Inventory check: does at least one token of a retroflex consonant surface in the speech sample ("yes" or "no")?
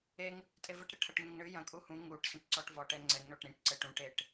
yes